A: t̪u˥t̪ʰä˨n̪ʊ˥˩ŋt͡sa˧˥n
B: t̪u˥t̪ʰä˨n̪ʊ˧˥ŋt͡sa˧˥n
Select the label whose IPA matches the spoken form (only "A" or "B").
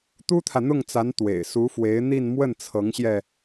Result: A